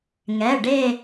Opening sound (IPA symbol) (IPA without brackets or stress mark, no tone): ŋ